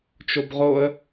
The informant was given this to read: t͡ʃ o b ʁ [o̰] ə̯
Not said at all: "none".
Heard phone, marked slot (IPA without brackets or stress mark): o